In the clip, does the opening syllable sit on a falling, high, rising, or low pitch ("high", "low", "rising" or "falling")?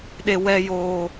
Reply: high